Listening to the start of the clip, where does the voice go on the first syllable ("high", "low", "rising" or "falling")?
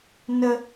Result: high